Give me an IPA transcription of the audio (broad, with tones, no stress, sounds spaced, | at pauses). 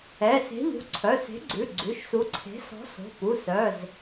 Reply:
ɛ˩˧˩ s e̤˨˥ ʎ ṳ˩˧˩ ǀʰ œ˩˧˩ s e̤˨˥ ɡ͡ǀ ʉ˩˧˩ ɡ͡ǀ ʉ˩˧˩ ʃ s u˨˥ ǀʰ e̤˨˥ s ɔ̤˨˥ s o̤˩˧˩ p u˩˧˩ s œ˩˧˩ z